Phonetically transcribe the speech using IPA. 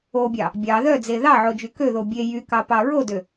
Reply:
o bʲ ɑ | bʲ ɑ ð œ d͡z e ð ɑ ʕ o d͡ʒ y k ø ð o bʲ e j y k ɑ p ɑ ɹ o d ø

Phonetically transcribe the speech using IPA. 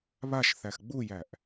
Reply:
β a ʃ θ æ x ɡ͡b u j æ ʔ

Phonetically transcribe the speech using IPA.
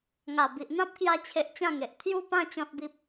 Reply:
ŋ a˨˩ b i˨ ʔ n̪ ã˦ p̚ k j a˧ t͡ɕʰ e˨ ʔ t͡ɕ ã˥˧ ŋ e˨ ʔ t̪ʰ j u˧ p ã˧ t͡ɕ ɔ̃˦ t̚ b i˦ p̚

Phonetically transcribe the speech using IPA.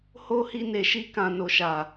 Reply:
h o˦ h i˧ n e˨ ʃ i˧ k ã˨ n o˨ ʃ a˨

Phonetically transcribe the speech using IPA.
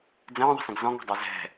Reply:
d͡z ə̃ː ðˤ ə̤ s ə̃ ɡ z ɔ̃ ŋ ɛ̤ dˤ a z ɛ̤

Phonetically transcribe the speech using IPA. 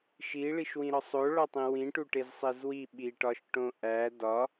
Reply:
ʃ i ɭ i ʃ w ĩ ɾ ɒ sˤ o ɭ ɒ tˤ ĩ w ĩ ʈ u ʈ e z sˤ e z w i ɓ i ʈ ɒ ʃ ʈ õ ʔ æ d ɒ

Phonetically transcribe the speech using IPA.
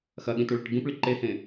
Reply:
x ɐ ɠ ĩ t u ɭ e ʈ ɡ ĩ p ɭ i ǃ e h ẽ

